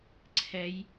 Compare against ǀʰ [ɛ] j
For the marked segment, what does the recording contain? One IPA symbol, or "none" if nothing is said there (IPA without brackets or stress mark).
ɛ